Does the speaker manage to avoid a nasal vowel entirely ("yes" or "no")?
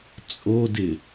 yes